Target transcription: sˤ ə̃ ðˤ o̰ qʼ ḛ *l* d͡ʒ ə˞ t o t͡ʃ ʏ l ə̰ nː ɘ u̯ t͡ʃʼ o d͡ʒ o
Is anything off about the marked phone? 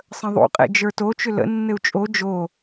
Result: yes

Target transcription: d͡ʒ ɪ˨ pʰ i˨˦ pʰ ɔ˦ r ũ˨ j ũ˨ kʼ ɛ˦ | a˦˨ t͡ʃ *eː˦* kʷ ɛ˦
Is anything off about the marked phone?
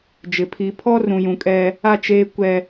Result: no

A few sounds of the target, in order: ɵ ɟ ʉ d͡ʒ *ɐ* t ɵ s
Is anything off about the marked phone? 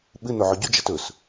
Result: no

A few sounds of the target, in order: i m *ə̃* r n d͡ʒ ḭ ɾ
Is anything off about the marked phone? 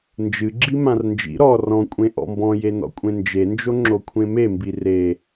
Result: yes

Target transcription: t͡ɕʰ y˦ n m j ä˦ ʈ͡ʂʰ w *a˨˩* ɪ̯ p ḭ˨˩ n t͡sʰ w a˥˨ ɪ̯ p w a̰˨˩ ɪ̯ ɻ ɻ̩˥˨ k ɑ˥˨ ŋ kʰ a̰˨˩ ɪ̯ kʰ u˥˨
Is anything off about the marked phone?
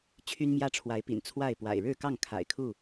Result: yes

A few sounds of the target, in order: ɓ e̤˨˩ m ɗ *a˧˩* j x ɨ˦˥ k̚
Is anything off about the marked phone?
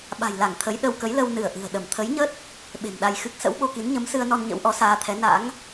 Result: yes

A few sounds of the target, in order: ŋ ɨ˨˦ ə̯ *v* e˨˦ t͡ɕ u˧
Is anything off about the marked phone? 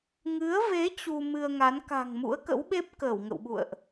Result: no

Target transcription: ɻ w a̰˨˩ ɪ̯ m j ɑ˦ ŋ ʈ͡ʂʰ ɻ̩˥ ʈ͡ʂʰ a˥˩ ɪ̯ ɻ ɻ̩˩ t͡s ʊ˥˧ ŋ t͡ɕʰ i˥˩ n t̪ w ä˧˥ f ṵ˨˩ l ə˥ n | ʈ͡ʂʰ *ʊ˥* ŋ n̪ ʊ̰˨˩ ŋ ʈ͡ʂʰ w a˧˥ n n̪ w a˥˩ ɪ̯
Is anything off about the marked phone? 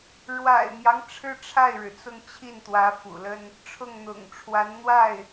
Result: yes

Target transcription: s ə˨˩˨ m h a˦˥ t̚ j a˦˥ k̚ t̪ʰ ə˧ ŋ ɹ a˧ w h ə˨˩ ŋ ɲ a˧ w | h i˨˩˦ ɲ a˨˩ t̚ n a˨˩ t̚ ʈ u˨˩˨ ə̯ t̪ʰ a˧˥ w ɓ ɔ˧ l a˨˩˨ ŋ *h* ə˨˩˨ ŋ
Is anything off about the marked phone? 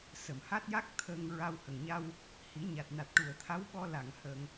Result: no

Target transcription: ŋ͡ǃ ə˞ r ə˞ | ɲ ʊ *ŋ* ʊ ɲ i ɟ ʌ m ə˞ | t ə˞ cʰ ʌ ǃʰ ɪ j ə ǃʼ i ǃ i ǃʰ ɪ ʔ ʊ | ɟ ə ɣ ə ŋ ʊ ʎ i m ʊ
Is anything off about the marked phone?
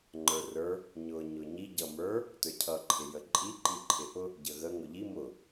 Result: yes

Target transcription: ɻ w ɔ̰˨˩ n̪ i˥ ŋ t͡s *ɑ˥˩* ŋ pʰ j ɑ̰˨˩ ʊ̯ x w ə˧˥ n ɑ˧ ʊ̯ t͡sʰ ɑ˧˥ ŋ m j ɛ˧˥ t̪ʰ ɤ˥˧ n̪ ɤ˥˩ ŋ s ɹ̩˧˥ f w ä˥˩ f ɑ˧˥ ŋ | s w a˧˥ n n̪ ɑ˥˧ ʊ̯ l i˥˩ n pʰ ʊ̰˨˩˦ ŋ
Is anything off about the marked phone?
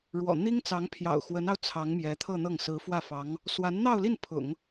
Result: yes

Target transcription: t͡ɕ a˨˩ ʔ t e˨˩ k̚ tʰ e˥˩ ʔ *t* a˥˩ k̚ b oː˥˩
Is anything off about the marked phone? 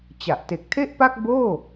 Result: yes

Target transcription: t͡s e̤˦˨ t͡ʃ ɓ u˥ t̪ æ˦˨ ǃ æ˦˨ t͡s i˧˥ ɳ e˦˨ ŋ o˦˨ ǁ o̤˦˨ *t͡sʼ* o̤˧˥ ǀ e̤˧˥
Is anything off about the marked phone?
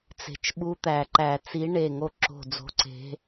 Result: yes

